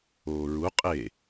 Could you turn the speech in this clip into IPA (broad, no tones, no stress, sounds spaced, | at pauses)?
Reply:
oː ɹ u qʼ e